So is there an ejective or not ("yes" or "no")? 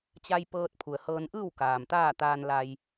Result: no